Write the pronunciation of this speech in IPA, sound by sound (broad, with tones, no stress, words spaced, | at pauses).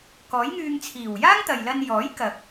kɔː˨˥jŋyː˧ŋt͡sʰiː˨˩w jaː˥ŋt̪ɐ˨jlɐ˧n jɔː˨˥jkɐ˨k̚